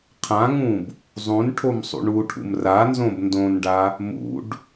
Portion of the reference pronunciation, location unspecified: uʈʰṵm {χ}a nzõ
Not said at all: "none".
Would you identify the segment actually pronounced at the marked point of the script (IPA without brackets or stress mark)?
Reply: r